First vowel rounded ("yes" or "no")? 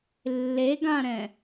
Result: no